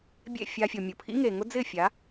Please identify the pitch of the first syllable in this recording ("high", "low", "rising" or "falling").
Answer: falling